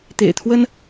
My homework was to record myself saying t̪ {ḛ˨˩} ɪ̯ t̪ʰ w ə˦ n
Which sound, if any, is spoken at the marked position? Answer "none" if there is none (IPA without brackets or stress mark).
ḛ˨˩